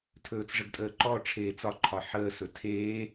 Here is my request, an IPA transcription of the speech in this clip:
tʰɵːt͡sʐəɡtʼəːǃɔ ʈ͡ʂʰeːt͡sɒǃʰɒ ħəːsɵ tʰeː

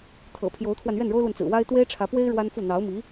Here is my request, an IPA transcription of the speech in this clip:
t̪ʰɤ̰˨˩ pʰjo˧˥ʊ̯t̪ʰwa˧n ɥɛ˥˩nɻo˥ʊ̯lwə˨nt͡sɹ̩˨˩ wa˥ɪ̯ t̪we˥ɪ̯ʈ͡ʂʰä˧˥pwe˥ɪ̯ ɻwa˥nfu˥˩ n̪ɑ˧˥ʊ̯mi˧˥

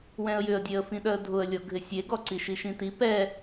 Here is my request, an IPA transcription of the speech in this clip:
wɛ̃ə̯jʏə̯dʲeə̯ fĩɗœə̯dʱʊə̯lʲɔ ɡʱɪsʲeɡɔ ǀiʃiʃĩti pɛ

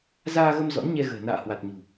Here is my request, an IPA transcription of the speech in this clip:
zaː˧ɣə˧m zɔ̰˧˥nɲɛ˧ɣə̤ː˨˩ na̰ː˧˨hwa˨˩t̚ ɲṳ˨˩

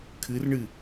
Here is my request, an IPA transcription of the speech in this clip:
kʰɨrɳɨ

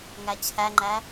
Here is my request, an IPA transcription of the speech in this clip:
ŋæt͡ɕʰæŋ͡ǃæ

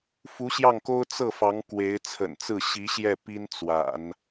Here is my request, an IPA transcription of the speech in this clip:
fu˧˥ɕjɑ˥˩ŋko˥ʊ̯ t͡sɤ˥˩fɑ˧˥ŋ kwe˧˥ɪ̯ t͡sʰə̰˨˩nt͡sɹ̩˥˩ ɕi˧˥ɕjɛ˥˩ pi˥nt͡swa̰˨˩˦n

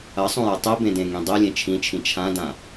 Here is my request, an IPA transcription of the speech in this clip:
ɐsˤõjɐ tˤibẽdẽŋĩ dˤilʲẽ t͡ʃʰĩt͡ʃʰĩ t͡ʃʰãdã

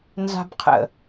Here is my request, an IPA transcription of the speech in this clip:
nza̤bqʰə̰

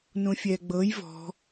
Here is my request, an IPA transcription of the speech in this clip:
nũfʲɛɡ͡bɤj vɔ̤

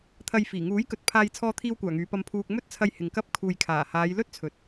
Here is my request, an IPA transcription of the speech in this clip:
t̪ʰɐ˨jfiː˨˩ŋuː˨˥j kɵ˨t̚ pʰaː˧j t͡sʰɔː˧t̪ʰiː˧wkʷaː˨˩ ŋyː˨˧pɐ˧mpʰuː˧k̚ mɵ˥t̚t͡sʰɐ˧jhɪ˨ŋ kɐ˧p̚ kʰuː˨jkʰaː˨˩haː˨˧j lɵ˥t̚t͡sʰɵ˨t̚

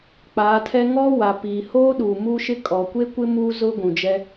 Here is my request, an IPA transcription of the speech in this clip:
k͡paː˨˦tʰɛ˦ ŋɔ˦wa˨piː˨hoː˦ ɗuː˨muː˦ʃɪ˦ kʼɔ˨kʷe˦kʷɪ˦ muː˦zʊ˦ɡʷũ˨d͡ʒɛ˦

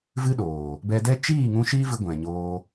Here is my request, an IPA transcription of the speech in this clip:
vɨ˦ɗoː˨ | bɛ˧dɛ˦ t͡ʃiː˦˨ŋũ˧ ʃiː˦vɨ˧ ɡʷɛ̃˨ɲoː˧

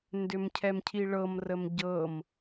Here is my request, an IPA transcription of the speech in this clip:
ndʏmcʰɛmcʰiɭɤm rəmɟɤm

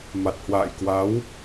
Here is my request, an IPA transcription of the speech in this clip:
ma˨˩t̚hwa̰ː˧˨j kwa˨˦w

